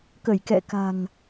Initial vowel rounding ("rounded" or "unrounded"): unrounded